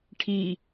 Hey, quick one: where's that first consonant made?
retroflex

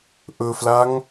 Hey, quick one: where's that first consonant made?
throat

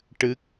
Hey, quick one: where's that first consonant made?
retroflex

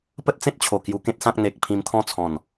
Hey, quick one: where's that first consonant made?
lips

